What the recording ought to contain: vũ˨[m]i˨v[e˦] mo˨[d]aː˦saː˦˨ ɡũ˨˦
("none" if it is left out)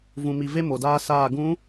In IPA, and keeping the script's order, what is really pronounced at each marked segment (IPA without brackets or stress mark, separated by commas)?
m, e˦, d